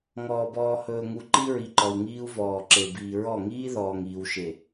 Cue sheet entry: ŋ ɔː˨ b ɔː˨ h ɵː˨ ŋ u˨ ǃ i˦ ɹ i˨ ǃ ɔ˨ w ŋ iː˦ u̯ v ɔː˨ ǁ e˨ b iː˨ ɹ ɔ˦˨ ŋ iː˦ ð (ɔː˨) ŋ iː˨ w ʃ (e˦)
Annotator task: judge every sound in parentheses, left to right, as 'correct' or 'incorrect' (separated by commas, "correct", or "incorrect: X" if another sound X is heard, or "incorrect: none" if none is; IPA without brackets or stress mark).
correct, incorrect: e˨